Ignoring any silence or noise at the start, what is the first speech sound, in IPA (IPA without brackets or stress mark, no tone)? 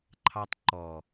ǃʰ